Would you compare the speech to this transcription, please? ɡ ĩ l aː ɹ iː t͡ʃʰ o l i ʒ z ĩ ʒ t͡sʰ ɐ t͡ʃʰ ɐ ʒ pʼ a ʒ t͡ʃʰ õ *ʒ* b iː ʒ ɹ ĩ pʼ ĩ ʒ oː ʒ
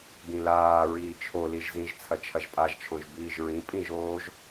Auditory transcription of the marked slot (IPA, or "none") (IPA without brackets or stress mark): ʒ